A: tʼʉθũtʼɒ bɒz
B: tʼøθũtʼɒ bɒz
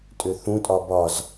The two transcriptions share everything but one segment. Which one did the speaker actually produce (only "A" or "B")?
B